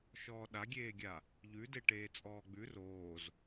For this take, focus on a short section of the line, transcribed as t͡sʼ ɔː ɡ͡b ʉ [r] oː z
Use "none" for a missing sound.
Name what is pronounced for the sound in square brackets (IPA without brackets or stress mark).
r